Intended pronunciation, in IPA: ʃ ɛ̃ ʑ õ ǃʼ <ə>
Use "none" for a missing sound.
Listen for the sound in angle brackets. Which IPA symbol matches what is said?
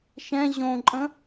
ə̃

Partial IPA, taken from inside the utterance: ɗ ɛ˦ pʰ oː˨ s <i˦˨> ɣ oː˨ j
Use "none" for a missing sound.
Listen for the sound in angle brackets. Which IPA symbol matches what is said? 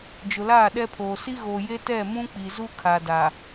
i˦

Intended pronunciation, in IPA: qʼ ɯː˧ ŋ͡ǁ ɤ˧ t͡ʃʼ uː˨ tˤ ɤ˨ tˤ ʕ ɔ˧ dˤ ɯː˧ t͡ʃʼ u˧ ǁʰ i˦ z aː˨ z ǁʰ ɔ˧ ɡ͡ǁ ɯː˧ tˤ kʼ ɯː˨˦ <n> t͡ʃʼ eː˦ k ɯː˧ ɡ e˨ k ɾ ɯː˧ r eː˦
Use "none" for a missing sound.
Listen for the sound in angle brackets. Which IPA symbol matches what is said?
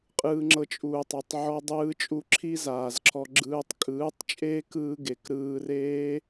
tˤ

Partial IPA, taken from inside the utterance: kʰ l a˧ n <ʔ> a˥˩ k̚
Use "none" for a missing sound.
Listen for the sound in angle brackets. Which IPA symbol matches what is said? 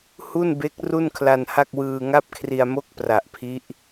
h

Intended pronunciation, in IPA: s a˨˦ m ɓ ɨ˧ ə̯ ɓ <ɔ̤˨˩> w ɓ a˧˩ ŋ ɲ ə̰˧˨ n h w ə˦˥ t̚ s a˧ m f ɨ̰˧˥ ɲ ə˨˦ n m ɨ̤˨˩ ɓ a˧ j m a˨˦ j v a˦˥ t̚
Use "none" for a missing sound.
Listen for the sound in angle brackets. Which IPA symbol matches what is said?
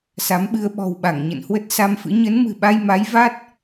ɔ̤˨˩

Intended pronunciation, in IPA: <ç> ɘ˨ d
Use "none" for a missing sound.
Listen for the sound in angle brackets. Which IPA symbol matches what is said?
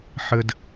ħ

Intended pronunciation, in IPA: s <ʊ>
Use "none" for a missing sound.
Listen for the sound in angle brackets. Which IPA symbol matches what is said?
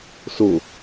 ʊ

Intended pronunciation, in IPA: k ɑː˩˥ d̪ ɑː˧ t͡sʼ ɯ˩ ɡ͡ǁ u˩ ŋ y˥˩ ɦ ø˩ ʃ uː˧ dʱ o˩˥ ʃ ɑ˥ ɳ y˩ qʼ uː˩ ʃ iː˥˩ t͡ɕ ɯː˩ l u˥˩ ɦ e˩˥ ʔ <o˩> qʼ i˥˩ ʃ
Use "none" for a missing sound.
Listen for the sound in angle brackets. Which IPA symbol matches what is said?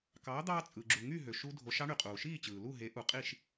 u˩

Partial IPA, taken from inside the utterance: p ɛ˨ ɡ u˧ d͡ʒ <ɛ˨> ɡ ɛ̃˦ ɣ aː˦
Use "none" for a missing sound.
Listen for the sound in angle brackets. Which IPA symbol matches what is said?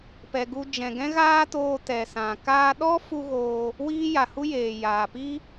ɛ̃˨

